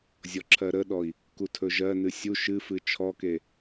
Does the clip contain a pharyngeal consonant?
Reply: no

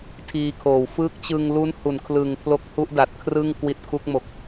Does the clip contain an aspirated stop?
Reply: yes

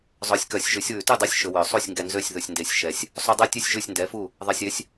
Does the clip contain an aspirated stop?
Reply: no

